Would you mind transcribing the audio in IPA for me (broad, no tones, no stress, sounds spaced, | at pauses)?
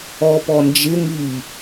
ɔ p ɔ n d͡ʒ ɪ ŋ i